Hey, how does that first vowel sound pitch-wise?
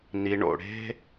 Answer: low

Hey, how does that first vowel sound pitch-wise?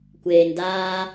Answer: low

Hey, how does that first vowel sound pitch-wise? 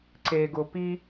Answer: low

